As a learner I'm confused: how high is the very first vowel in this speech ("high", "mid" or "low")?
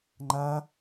low